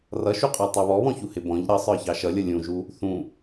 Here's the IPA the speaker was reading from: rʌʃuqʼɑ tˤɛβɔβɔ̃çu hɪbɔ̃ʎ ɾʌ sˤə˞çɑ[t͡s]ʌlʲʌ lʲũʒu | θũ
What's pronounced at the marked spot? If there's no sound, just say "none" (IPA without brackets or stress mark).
ʃ